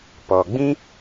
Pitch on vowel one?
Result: low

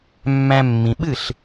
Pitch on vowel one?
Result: low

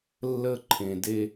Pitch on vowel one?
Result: high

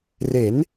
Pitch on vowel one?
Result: rising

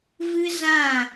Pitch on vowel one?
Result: high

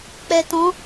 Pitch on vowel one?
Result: low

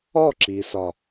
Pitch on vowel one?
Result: falling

